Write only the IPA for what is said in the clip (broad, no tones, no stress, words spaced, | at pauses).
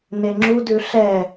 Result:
neŋ͡ǁudʉ ɬɛ